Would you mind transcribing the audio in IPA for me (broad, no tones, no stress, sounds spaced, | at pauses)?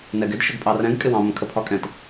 n ɛ ɡ ɪ d ʃ ʊ ɡ pʼ ɑ r ɛ̃ ɡ kʼ ɪ w ɑ̃ m ə̃ kʰ ə pʰ ɒ kʼ ɛ̃ t